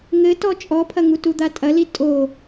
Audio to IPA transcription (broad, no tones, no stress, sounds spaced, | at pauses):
ŋ ɘ t ɔ t͡ʃʼ ɔ pʰ ɐ ŋ u t u d̪ a tʼ ɐ l i tʼ o